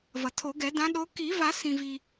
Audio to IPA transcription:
v ʌ˩ tʰ o˨˩˦ ɡ ɛ˨˩˦ d ã˨˦ ɗ o˨˦ k i˨˩˦ v a˨˩˦ s ĩ˩ v i˩

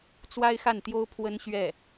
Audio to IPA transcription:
t͡s w a˥ ɪ̯ x a˥˩ n t̪ j o˥ ʊ̯ pʰ w ə˥ n ɕ ɥ ɛ˥˩

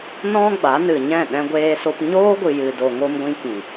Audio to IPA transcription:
n ɔ̃˦ ɡ͡b a˨˦ n ɨ˨ ɲ ɛ̃˦˨ ɗ ɛ̃˧ ɡʷ eː˧ s o˧ p ɲ oː˦ ɡʷ ɨ˨ j ɨ˨ d o˨ ŋ o˧ m ɡʷ ĩ˧ k ĩ˨

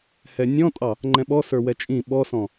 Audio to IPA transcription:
h ɛ nʲ ɔ̃ tʼ ɑ | ŋ͡ǃ ɛ̃ ɓ ɔ s ə˞ w ɛ t͡ʃʼ ĩ ɓ ɔ s ɔ̃

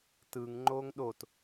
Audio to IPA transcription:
t ɯ ŋ ŋ͡ǃ oː ŋ ɗ o t

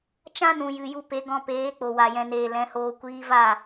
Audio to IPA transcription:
t͡ʃ ã˦ n ũ˨ j ɨ˨ j u˧ p e˨˦ ɡ ɔ̃˧ p eː˨˦ k͡p o˨ w a˨ j ɛ̃˨ n eː˨ l ɛ̃˨˦ h oː˧ kʷ iː˧ v a˦˨

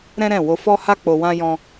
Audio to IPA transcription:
ɾ ɛ̃˦ ɾ ɛ̃˦˨ w o˧ f ɔ˦ h a˦ k͡p o˧ w ã˦ j ɔ̃˧

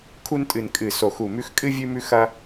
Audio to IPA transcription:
kʰ u˦ n tʼ ɨ˨˩ n kʼ ɨ˨˩ s o˨˩ x u˨˩ m ʉ˦ x kʼ ɨ˦ vʲ ʉ˦ m ʉ˦ x ɐ˦

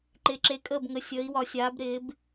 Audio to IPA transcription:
ǃ ɪː˩˧ ǁ e˩˧ kʼ əː˧˩ b ŋ ə˩˧ sʲ əː˩˧ i̯ w ɒ˩˧ sʲ aː˩˧ b ɾ ɪː˩˧ b

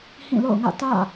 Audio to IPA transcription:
h ĩ˦˨ l o̰˦˨ ʊ̯ ŋ ä̰˦˨ t ä̰˦˨

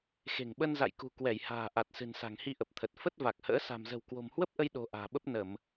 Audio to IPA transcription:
x e̤˨˩ ŋ ɓ ə˧ n z a̰˧˨ j k ṳ˨˩ k w ɛ˧˩ j h a̤ː˨˩ ʔ a˨˩ t̚ s ɨ̤˨˩ n s a̤˨˩ ŋ h i˧ ʔ ə˨˩ p̚ t̪ʰ ə˨˩ t̚ f ə˦˥ t̚ v a˨˩ k̚ h ə̰ː˧˥ s a̤˨˩ m z ə̤˨˩ w k w o̤˨˩ m h w ə˦˥ p̚ ʔ ə˧ j ɗ o̤˨˩ ʔ a̤ː˨˩ ɓ ə˦˥ p̚ n ə˧˩˨ m

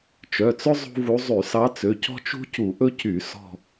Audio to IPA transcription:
t͡ʃ œ˩˧˩ t͡s ɵ˥ zˤ ṳ˥ v u˧˥ zˤ y˧˩˧ s ɑ˧˥ t͡s ø˩˧˩ c ɔ̤˥ t͡ʃ ṳ˥ c u˧˩˧ ʔ ɵ˥ c y˧˩˧ s ɔ̤˦˨

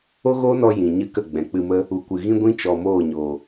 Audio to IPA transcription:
o˦ ɣ oː˦ n ɔ˧ j ĩ˨ ɲ ɨ˧ k ə˦˨ ɡ͡b ɛ̃˨ k͡p ɨ˧ m ə˦ | u˨ kʷ ɨ˨ ɣ ĩ˦ ɡʷ ĩ˦ t͡ʃ ɔ˨ m oː˦˨ ɲ o˨

